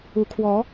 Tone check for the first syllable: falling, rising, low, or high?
rising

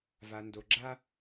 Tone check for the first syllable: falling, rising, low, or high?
low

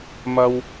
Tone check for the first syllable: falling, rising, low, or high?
high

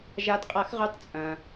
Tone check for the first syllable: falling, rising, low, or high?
rising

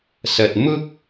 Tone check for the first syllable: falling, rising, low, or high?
low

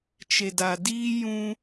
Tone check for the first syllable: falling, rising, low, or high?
low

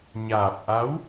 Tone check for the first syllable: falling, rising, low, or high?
low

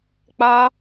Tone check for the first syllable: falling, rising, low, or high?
high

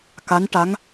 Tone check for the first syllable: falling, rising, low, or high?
rising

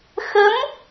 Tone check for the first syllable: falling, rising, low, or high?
rising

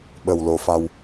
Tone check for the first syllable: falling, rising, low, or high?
low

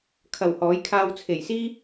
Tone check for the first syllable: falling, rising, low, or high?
low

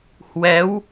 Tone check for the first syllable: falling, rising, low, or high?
rising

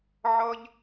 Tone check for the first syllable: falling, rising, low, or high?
high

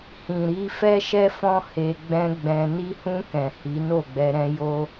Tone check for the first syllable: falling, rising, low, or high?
low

